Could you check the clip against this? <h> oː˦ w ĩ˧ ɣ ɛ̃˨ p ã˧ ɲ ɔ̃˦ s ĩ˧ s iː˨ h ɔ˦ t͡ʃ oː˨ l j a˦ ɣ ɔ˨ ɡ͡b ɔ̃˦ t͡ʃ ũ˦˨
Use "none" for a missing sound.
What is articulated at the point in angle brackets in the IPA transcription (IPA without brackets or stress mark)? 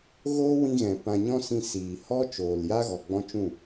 ɣ